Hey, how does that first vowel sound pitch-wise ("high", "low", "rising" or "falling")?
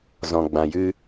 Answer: low